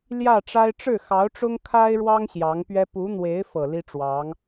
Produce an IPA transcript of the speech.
l j ä˥˩ ʈ͡ʂ a˥ ɪ̯ ʈ͡ʂ ɻ̩˥˩ x ɑ˧˥ ʊ̯ ʈ͡ʂ ʊ˥ ŋ kʰ a˥ ɪ̯ ɻ w ɑ˥ ŋ ɕ j ɑ˧˥ ŋ p ɥ ɛ˥ p u˧˥ n̪ w e˧˥ ɪ̯ f ɤ˨˩ l i˥ ʈ͡ʂ w ɑ˧˥ ŋ

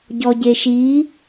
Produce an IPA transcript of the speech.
ɟ ɔ ɟ e ʃ i

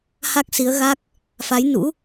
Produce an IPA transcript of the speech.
h a˦˥ k̚ s i˨˦ ə̯ ɣ aː˦˥ k̚ | f a˨˦ j n ṵ˧˥

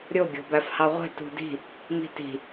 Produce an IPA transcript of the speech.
ɾʲ o ɡʲ o̤ b æ f h ɑ ʁʷ e̤ t ṳ d i̤ | m i̤ t i̤

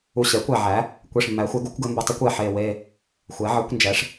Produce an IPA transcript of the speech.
u˧˩ ɕ ɛ˩˥ kʷ æ˧˩ ʕ æ˩˥ | kʷ e˧˩ ʂ mː æ˩˥ xʷ ɛ˩˥ ɡ u˩˥ kʷ ɡ ɘ˩˥ m b ɘ˩˥ tˤ ə˩˥ kʷ ɛ˧˩ ħ e˧˩ w e˧˩ | xʷ ɛ˩˥ ʕ ɘ˩˥ kʷ n d͡ʒ ɛ˩˥ ʂ

